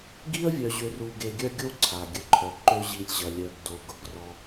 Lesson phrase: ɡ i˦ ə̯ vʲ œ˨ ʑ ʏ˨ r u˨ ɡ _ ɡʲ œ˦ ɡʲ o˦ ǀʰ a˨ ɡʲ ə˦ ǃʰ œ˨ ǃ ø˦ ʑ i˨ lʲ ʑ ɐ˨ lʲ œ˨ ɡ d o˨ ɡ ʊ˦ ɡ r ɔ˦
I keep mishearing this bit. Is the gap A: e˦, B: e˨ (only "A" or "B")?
B